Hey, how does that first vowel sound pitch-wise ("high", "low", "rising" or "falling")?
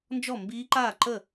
falling